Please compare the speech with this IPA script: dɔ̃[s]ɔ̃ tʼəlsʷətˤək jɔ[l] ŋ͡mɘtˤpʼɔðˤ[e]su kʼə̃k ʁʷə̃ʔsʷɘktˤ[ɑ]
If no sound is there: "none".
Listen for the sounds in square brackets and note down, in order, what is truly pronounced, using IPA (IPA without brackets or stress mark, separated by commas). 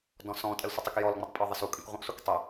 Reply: s, l, ɘ, ə